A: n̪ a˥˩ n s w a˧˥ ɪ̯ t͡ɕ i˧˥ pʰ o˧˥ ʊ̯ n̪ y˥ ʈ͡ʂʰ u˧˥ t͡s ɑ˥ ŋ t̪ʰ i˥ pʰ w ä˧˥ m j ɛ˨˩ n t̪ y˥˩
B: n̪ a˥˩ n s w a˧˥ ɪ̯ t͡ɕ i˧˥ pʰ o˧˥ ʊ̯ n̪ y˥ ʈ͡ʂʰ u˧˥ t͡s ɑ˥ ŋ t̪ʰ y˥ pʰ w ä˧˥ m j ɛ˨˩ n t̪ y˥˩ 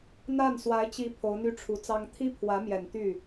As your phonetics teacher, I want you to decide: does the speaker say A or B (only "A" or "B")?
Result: A